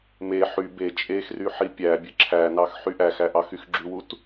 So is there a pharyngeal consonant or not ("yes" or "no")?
yes